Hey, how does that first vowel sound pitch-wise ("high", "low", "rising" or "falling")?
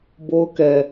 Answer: high